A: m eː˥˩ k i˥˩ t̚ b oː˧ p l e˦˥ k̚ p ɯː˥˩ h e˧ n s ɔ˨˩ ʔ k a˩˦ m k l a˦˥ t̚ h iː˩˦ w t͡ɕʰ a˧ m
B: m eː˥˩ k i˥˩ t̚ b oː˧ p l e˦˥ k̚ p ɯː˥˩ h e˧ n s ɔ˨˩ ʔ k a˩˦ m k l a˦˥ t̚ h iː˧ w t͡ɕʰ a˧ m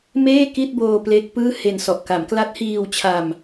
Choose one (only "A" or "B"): B